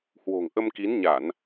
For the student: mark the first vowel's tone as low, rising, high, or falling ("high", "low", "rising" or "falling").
low